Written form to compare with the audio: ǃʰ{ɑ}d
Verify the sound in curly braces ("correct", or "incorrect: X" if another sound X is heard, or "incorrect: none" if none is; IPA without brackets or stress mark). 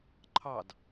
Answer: correct